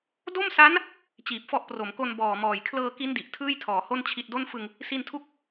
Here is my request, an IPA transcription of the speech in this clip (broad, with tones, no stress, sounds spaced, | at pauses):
d o˥˩ m s a˦˥ n | t͡ɕ iː˨˩ p̚ f ɔ˦˥ ʔ p r o˩˦ m k o˧ n b ɔː˨˩ m ɔː˨˩ j kʰ l ɤː˧ k i˦˥ n d i˨˩ ʔ tʰ ɯː˥˩ j tʰ ɔː˩˦ h o˥˩ n t͡ɕʰ i˨˩ t̚ d o˥˩ n f ɯ˧ ŋ | s i˧ n tʰ u˥˩ k̚